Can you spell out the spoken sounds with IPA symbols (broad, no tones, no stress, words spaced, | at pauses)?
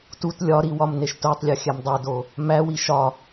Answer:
tut lʲɒɾi wɒmneʃtotˤlʲɒ xʲæmdˤodo | mæwi ʃɒ